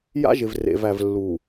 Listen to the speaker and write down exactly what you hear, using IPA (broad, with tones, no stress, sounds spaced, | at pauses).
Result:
j a̰˦ ʒ ɪ˨ v r ḛ˨ v æ˨ v lː u˨